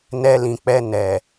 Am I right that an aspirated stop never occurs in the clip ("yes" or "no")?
yes